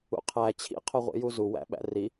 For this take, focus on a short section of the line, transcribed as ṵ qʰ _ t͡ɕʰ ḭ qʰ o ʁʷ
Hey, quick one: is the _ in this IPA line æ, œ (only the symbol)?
æ